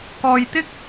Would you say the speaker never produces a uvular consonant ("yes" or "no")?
yes